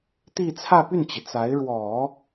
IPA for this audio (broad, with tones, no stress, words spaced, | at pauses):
t̪i˥˧t͡sʰä˥˧ py˥˩nt͡ɕi˩ t͡sa˧˥ɪ̯ ɻwɔ˨˩˦